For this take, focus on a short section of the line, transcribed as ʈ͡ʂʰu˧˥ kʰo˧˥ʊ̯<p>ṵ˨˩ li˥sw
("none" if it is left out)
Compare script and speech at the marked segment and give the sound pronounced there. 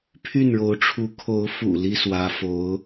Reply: f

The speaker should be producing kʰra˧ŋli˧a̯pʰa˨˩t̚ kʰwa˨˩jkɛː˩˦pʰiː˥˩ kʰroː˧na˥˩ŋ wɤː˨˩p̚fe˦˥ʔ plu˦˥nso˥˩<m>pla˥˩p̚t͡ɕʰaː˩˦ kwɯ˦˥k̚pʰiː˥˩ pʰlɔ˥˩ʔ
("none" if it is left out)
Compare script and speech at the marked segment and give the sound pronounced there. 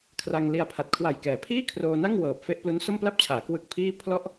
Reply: m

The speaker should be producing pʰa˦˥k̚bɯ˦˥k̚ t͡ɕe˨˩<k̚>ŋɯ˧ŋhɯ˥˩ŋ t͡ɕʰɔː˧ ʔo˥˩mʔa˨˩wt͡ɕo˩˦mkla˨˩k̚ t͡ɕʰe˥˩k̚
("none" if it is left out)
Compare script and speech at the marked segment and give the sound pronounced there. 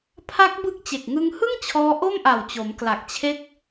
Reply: k̚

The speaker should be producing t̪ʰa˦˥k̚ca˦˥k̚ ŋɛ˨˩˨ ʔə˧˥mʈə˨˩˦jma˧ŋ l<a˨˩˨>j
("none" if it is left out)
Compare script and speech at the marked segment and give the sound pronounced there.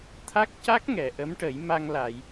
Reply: a˨˩˨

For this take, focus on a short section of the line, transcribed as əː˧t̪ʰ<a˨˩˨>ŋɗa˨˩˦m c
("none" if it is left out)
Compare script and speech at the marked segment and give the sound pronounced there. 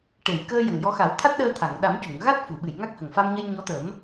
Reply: a˨˩˨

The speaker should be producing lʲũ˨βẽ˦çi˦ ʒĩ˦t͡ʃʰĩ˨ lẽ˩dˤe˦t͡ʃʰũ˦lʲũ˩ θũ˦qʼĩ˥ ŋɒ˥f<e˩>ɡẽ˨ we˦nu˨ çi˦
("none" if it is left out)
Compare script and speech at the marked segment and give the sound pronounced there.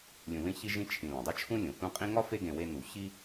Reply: e˦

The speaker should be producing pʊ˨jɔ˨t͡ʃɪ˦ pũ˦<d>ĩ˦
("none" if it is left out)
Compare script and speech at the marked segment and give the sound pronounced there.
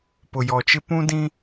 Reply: d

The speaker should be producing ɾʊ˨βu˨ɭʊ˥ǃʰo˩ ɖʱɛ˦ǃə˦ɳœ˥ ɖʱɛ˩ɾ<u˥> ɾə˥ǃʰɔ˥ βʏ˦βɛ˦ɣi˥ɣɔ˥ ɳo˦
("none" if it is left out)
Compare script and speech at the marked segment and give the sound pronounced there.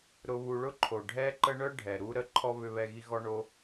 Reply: u˦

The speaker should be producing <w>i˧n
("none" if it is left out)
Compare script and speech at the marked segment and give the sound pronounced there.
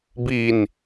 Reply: b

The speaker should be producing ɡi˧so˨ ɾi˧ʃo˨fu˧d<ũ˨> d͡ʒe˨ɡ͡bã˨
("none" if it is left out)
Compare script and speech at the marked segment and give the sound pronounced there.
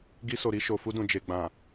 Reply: ũ˨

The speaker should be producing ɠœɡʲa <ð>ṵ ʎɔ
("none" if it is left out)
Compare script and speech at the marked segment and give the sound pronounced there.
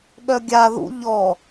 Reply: ð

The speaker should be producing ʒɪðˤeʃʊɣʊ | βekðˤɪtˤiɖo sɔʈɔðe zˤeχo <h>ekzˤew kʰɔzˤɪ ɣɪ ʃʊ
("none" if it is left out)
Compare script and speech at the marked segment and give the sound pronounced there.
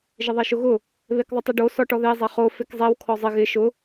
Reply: f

